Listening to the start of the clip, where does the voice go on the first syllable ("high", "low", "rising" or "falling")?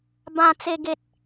high